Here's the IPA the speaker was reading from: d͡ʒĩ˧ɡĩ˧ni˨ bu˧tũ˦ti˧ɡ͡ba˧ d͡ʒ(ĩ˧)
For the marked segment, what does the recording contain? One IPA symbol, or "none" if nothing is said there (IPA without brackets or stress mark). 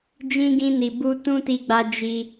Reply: i˧